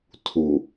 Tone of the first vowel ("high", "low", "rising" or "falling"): low